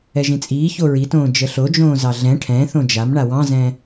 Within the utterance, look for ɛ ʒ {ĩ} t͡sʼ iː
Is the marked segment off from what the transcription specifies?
no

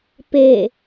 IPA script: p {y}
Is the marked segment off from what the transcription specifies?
yes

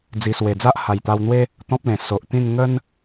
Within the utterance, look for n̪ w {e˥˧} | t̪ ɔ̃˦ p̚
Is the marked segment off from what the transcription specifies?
yes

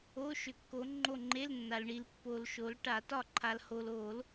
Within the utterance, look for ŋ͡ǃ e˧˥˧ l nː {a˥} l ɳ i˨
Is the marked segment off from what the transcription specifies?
yes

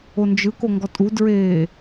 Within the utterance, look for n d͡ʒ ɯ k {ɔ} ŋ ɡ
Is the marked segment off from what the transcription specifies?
yes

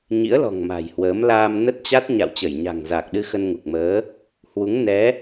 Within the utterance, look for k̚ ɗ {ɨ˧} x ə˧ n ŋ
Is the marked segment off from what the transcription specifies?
no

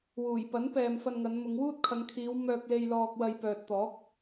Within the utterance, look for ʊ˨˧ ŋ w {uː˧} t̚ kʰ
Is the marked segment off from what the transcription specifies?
yes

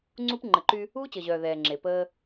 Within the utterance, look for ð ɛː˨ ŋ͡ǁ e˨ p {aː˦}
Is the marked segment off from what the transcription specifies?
yes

